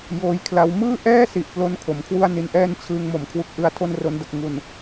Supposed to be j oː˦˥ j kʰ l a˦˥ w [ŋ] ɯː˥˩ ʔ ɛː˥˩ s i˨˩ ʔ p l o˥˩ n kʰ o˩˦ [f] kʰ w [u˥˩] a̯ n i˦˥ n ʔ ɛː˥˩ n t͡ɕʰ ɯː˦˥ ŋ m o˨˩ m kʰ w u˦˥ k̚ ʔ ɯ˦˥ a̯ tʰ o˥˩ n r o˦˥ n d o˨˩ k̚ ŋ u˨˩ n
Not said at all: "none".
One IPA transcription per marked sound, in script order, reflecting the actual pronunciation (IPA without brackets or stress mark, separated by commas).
m, m, u˥˩